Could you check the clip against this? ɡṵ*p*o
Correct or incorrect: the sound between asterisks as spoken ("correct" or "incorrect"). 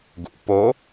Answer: correct